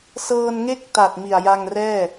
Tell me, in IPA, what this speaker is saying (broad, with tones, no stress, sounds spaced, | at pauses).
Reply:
s ɤː˧ n ŋ e˥˩ k̚ t a˨˩ t̚ m i˨˩ a̯ j a˧ ŋ r ɛː˥˩